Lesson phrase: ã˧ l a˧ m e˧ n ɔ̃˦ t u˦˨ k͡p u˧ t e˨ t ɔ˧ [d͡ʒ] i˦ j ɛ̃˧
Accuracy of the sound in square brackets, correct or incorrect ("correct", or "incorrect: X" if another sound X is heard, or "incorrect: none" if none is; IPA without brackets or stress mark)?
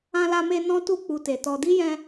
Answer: incorrect: d